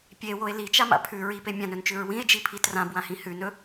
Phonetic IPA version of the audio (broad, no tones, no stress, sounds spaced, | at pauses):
pʲ e w o e̯ l i t͡ʃ a m a̰ pʰ ʉ ɹ i p e mʲ ã n ɵ n t͡ʃ ʉ ɹ w ĩ e̯ d͡ʒ i pʰ i t r ã b w ã h ĩ h ʉ n ɵ